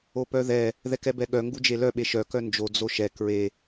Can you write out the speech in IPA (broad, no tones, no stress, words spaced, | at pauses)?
opœðɛ | ðɛkɛbɛɠœ ŋɡud͡ʒelœ ɓeʃœ kœnd͡ʒo d͡zoʃɛ kɹe